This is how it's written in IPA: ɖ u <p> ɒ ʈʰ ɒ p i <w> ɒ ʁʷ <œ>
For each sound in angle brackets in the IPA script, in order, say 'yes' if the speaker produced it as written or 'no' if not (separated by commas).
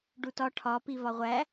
no, no, no